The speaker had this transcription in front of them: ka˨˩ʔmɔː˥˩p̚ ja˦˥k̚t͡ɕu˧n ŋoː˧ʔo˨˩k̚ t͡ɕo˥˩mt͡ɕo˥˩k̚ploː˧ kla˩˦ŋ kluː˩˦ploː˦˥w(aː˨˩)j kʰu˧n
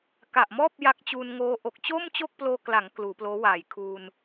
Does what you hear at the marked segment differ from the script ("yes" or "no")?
no